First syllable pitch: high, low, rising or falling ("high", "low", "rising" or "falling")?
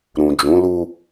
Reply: low